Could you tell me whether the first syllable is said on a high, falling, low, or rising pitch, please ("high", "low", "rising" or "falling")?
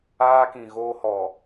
high